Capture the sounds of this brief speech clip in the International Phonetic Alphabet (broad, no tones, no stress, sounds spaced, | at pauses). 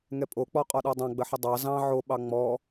ŋ ɛ pʼ o k͡p ɔ qʼ ɔ ɗ ɔ dˤ ɑ̃ ɡ͡b ə ħ ə dˤ ɑ z ɑ̃ ʕ o ɓ ɑ ŋ͡m ɔ